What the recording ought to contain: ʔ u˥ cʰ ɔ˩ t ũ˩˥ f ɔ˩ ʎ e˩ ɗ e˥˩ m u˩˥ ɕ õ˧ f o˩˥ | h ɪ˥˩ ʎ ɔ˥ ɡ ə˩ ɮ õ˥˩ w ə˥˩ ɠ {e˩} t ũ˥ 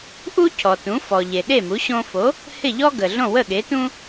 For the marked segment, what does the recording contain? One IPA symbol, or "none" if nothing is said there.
e˩˥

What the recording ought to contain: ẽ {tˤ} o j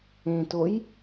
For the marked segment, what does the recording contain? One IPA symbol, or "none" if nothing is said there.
t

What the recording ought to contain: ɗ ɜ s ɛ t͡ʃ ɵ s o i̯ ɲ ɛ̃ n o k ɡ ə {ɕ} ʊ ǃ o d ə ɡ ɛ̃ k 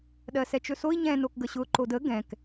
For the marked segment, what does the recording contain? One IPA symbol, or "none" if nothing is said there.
ɕ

